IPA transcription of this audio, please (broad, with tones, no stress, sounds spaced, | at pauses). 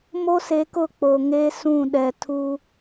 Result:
m o˦ s e˨˦ k ʊ˦˨ k͡p o˨ ŋ e˦ s ũ˦˨ ɗ ɛ˨ tʰ u˦